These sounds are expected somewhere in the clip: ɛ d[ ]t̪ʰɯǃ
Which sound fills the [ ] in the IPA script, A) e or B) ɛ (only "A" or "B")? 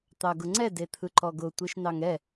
A